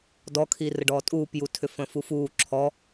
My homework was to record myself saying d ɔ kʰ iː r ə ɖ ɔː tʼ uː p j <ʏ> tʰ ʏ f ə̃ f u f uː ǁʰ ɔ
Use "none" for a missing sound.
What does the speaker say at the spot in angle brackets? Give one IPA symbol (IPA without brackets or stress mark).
u